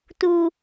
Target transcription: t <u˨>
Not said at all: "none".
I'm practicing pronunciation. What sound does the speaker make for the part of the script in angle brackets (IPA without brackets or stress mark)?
u˨